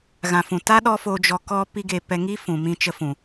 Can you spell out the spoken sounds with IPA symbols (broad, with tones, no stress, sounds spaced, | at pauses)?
ɣ ã˨ f ũ˨ t a˦ ɗ ɔ˦ f o˧ d͡ʒ ɔ˧ k ɔ˦ p i˦ ɡ e˧ p ɛ˧ ŋ i˦ f ũ˨ m ĩ˧ t͡ʃ ə˧ f ũ˨